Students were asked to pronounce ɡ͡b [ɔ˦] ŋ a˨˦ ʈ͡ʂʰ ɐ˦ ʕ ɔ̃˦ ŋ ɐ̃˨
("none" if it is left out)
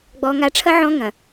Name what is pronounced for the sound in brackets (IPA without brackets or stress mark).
ɔ˨